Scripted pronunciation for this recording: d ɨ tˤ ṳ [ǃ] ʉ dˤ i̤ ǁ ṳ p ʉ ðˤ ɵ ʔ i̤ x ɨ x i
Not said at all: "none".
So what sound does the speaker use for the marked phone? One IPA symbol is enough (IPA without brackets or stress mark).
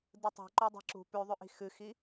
ǃ